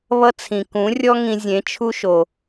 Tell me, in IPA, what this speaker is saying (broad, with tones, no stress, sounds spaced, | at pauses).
β ʌ˦ t͡sʰ ĩ˨ k ũ˨˦ rʲ ɔ˦ ŋ ĩ˧ zʲ ẽ˨˦ t͡ʃʰ u˦ ʃ o˨